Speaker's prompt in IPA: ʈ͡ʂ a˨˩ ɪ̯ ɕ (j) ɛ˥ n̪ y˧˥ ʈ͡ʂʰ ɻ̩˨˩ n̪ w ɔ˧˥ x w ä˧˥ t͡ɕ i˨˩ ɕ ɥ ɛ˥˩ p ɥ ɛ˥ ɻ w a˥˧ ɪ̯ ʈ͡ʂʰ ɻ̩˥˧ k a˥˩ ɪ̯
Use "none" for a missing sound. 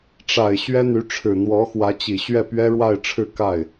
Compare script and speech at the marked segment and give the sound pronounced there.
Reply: ɥ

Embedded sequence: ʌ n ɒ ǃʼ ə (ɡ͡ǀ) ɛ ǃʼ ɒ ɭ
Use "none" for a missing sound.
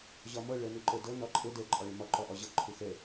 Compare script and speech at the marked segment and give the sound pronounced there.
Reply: d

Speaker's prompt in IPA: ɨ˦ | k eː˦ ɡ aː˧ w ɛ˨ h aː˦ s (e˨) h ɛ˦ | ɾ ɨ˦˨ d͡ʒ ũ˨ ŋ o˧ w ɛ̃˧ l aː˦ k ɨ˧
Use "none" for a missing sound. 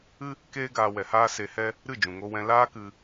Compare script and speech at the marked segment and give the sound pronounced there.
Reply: e˧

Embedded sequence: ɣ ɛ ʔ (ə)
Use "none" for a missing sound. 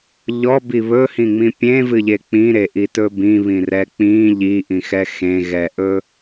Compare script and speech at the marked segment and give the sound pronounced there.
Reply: ɵ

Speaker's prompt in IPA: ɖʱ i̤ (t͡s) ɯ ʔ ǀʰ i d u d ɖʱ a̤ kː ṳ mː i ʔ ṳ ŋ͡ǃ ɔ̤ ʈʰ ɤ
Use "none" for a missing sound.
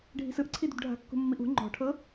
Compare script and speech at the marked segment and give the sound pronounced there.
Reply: s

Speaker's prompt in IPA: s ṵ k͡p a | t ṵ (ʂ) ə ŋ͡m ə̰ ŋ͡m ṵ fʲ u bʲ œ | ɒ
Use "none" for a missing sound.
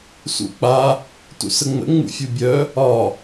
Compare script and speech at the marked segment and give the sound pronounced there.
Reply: s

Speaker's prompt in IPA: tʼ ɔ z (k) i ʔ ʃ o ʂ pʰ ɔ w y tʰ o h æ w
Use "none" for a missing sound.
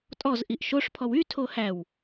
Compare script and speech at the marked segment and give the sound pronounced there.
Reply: ʔ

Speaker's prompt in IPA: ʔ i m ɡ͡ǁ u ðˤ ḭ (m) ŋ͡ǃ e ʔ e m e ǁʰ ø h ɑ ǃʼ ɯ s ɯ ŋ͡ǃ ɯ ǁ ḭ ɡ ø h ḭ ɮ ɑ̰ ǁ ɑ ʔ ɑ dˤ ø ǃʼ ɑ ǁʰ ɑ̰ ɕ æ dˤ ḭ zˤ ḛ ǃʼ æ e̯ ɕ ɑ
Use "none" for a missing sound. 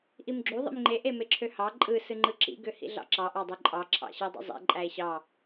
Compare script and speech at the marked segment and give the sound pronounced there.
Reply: m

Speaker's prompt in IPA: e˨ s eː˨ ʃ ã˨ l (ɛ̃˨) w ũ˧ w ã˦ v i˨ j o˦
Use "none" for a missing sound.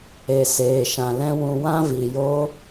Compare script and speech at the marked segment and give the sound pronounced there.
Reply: ɛ̃˦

